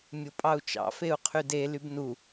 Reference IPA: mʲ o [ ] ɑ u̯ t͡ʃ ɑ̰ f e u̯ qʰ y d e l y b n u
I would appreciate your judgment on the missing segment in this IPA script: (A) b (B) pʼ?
B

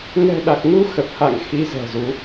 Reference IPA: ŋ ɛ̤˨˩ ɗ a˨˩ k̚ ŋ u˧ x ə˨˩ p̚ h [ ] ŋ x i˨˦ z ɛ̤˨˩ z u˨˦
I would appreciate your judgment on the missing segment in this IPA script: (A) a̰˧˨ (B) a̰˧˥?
A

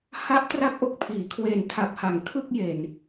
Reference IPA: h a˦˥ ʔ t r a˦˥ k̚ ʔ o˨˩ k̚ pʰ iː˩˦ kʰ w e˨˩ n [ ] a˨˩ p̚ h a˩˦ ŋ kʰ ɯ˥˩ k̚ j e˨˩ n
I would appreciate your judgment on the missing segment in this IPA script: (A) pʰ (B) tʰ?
B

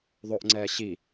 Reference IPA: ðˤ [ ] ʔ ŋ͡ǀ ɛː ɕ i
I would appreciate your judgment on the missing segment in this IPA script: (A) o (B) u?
A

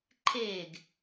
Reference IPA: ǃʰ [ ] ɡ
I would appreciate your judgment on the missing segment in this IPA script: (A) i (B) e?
B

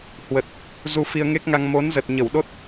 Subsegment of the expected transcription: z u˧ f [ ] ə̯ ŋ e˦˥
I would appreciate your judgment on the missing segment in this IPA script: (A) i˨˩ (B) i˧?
B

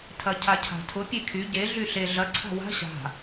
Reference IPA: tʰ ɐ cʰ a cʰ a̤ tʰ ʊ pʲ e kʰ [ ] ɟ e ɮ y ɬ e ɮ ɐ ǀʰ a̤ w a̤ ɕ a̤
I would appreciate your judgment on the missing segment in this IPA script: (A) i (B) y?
B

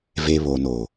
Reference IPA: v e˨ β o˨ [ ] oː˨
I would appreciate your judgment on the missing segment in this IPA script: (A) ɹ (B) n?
B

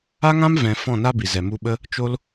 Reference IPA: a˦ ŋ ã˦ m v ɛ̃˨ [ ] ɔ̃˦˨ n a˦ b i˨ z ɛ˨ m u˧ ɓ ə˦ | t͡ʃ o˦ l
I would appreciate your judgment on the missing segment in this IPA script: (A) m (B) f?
B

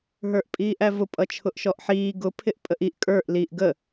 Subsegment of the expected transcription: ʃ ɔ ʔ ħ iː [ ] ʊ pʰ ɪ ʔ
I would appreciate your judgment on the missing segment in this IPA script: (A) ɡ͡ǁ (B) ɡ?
B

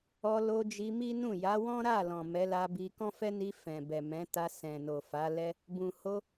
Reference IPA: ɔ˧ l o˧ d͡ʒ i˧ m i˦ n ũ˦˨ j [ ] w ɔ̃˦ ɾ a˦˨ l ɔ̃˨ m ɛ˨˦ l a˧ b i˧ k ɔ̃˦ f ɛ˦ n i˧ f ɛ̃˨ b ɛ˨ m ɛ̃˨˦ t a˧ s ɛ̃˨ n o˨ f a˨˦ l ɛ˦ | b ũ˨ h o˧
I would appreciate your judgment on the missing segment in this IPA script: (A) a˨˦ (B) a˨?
A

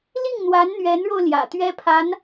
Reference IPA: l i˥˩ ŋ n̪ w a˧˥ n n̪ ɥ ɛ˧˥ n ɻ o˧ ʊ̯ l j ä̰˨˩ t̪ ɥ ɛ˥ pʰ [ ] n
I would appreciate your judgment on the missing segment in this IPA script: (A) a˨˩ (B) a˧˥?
B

